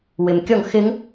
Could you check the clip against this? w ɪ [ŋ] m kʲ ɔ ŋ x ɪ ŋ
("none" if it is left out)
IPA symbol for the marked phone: none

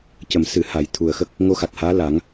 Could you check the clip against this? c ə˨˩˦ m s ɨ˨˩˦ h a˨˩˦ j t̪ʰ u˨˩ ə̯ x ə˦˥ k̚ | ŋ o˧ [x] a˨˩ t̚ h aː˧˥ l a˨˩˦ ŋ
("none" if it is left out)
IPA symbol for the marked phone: x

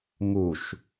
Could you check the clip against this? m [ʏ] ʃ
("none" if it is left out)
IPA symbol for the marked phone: u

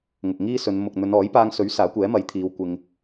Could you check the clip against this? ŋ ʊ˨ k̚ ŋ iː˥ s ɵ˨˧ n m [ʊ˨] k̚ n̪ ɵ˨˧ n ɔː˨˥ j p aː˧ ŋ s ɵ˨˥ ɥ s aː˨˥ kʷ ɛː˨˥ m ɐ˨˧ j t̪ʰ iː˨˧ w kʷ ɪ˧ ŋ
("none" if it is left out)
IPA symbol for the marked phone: ʊ˨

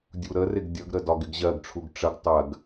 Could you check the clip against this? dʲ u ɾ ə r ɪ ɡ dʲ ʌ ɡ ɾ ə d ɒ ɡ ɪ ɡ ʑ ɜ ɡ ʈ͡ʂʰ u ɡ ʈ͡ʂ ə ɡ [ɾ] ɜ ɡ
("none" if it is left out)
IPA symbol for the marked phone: tˤ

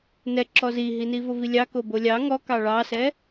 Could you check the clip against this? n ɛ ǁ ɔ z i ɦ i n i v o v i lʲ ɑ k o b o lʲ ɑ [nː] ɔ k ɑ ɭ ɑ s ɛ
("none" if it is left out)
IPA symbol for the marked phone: ŋ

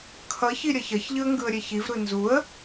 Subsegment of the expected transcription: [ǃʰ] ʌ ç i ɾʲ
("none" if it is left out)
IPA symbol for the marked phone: kʰ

